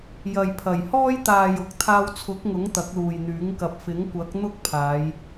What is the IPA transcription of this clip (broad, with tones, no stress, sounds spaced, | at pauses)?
j ɐ˨ j pʰ ɐ˨˩ j h ɔː˥ j t̪ aː˨ j ʊ˨ k̚ t̪ʰ aː˧ w t͡sʰ ʊ˨˥ k̚ ŋ ʊ˨˥ ŋ t̪ ɐ˨˥ k̚ l uː˨ j n̪ yː˨˥ ŋ k ɐ˨ p̚ f ɪ˨˥ ŋ kʷ ɐ˨˥ k̚ n̪ ʊ˥ k̚ pʰ aː˨˧ j